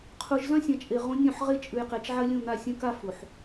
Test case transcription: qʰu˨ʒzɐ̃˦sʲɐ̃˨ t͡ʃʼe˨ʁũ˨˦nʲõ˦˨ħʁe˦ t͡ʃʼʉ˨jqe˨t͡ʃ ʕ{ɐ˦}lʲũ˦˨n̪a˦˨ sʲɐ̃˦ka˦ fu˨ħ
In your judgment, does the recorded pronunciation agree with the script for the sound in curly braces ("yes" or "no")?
yes